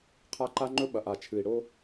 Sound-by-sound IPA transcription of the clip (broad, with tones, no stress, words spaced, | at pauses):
qʰa˦ǃa˦ŋ͡ǃɵ˦ ɓɐ˨ʔa˨t͡ʃʰɨ˨i̯ ɽo˦